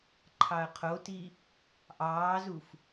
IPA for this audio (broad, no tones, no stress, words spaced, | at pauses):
ǃʰɑɐ̯qʰoti | ʔɑːzuf